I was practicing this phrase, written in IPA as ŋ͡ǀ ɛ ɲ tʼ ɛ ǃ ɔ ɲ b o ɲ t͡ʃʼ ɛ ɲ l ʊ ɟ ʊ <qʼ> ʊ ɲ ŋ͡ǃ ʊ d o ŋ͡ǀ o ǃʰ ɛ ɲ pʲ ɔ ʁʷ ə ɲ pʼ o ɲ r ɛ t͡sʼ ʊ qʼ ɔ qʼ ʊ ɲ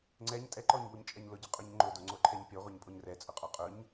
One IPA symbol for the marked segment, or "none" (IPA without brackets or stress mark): qʼ